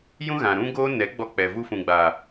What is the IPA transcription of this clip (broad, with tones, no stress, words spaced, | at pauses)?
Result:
jũ˦ɣã˨ɾũ˦ɡoː˦ nɛ˨˦ ɡ͡bɔ˧k͡pɛ˨ vu˧fũ˨ɡ͡ba˨